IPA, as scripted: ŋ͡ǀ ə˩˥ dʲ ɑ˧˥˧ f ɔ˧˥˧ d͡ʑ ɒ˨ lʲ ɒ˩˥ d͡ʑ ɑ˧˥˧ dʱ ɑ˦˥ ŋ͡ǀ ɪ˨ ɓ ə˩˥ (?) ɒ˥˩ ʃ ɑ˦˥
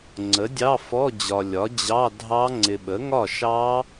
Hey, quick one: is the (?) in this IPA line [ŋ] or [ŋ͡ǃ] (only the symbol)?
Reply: ŋ